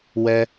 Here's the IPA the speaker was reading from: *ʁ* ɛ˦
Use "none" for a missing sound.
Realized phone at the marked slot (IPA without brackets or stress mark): w